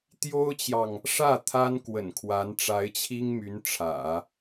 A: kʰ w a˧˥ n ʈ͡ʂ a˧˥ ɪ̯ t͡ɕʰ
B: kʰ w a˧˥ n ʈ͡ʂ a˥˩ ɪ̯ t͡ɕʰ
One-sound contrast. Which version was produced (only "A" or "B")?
A